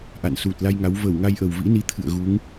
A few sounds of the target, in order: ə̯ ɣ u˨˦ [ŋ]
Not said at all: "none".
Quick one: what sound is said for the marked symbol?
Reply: ŋ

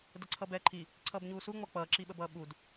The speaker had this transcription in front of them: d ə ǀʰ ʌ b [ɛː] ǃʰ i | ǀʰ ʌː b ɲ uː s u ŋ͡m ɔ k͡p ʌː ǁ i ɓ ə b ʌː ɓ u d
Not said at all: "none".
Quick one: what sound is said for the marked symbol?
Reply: ɛː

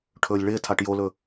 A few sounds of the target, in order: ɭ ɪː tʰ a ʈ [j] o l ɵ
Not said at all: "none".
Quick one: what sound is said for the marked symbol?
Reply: j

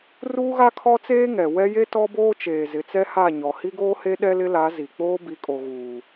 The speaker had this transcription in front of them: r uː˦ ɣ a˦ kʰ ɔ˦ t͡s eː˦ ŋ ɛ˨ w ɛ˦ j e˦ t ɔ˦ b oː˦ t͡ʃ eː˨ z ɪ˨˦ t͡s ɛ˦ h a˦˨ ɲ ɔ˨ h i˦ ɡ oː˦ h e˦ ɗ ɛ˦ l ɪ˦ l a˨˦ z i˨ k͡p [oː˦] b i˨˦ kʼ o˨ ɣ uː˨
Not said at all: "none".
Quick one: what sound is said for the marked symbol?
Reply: oː˦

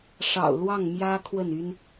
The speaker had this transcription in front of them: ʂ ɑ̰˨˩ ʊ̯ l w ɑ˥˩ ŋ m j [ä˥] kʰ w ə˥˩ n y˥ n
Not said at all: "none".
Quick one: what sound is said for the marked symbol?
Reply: ä˥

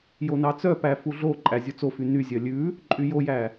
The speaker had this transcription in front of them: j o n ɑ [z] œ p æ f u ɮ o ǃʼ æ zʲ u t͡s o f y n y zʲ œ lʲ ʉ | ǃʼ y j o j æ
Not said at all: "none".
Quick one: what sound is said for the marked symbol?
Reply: t͡s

